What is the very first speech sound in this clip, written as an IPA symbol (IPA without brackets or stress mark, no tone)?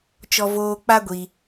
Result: t͡ʃ